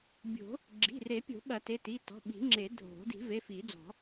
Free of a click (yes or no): no